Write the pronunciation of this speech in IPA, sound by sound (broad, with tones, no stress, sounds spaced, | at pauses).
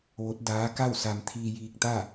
ʋ o˧˥ t̚ d aː˧˥ k a˥˨ w s a˧ m t̪ʰ iː˧ j iː˧ k̚ t̪ a˥˨